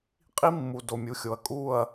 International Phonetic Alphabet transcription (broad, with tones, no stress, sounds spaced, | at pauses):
qʼ i˦ mː u˨ d o˨ mʲ u˨ xʲ o˨ ɐ̯ kʼ u˦˨ ɐ̯